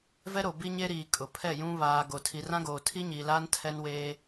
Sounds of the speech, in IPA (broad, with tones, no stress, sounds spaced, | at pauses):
v ɛ˦ ɾ o˨ b i˦ ɲ e˦ ɾ iː˨ kʼ ʊ˨ pʰ ɛ˦˨ j ũ˦ β aː˨ ɡ o˨ tʰ i˨ r ã˦ ɡ oː˨ tʰ i˦ ɲ iː˨ l aː˦ n tʰ ɛ˦ n w eː˦